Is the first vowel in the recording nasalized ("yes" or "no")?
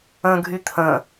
yes